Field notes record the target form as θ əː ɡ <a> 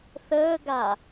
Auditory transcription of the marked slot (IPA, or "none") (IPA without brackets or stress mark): a